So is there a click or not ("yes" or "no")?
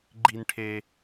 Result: yes